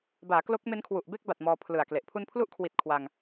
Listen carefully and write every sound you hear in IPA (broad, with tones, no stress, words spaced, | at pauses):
baː˩˦klo˦˥k̚me˦˥n kʰwu˨˩ʔbe˥˩k̚ba˨˩t̚ mɔː˧pʰlɯ˨˩a̯kle˨˩ʔ pʰu˧npʰlu˦˥ʔkʰwi˨˩t̚ kʰwa˧ŋ